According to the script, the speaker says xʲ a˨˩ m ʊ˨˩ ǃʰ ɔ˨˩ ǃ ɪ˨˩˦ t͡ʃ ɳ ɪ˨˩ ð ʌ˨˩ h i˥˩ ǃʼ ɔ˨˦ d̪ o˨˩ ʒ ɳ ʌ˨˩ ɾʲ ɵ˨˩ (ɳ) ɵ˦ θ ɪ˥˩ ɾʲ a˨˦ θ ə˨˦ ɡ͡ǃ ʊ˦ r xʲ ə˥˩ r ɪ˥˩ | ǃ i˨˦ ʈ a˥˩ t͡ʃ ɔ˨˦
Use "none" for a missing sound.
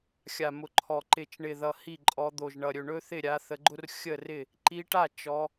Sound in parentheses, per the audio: ɳ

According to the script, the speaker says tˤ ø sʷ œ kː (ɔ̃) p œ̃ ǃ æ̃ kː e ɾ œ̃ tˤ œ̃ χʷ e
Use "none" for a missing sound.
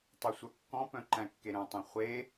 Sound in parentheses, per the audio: ɔ̃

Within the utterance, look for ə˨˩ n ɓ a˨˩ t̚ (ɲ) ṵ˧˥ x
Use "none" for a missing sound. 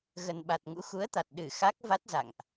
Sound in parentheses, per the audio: ŋ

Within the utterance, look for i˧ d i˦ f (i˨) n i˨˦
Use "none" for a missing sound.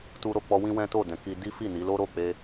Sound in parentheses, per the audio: i˦˨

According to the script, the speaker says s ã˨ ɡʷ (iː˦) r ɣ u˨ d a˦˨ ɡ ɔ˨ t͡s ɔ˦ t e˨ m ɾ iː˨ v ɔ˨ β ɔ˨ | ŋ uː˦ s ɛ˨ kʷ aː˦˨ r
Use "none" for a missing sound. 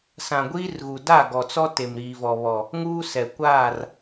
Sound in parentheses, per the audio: iː˦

